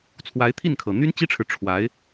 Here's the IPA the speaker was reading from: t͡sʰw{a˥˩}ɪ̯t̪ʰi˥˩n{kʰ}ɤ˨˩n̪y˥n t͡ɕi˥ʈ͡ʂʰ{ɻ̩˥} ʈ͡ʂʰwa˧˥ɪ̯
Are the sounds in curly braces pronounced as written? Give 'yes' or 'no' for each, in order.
no, yes, no

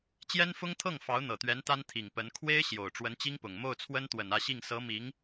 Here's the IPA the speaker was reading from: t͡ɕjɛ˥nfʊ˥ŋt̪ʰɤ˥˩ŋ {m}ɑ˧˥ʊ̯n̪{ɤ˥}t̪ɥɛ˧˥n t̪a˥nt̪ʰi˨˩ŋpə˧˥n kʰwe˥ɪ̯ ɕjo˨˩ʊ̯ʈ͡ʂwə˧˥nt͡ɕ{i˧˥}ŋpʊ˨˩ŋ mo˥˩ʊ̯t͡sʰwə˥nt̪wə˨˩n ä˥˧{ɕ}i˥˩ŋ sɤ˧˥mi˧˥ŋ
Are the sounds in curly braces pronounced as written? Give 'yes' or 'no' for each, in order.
no, no, no, yes

